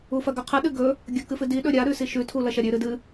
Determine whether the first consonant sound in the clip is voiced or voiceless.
voiceless